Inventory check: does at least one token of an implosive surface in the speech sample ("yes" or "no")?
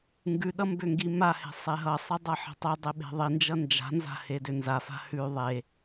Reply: yes